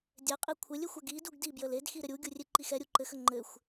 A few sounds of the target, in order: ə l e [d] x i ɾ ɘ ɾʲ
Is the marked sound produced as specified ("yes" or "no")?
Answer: yes